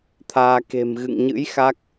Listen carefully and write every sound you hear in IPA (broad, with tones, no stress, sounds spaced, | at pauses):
t̪ʰ aː˧ k e̤˨˩ m ɣ ɨ̰˧˨ ŋ ɲ ɨ̰˧˥ j x a˦˥ k̚